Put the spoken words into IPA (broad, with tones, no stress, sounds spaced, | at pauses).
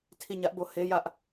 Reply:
tʰ i˦˨ ɲ ä˦ ʔ b o˦ h e˦ j ä˦ ʔ